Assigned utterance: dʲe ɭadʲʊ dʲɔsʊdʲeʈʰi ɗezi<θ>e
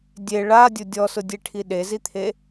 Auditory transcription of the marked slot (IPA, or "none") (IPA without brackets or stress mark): t̪ʰ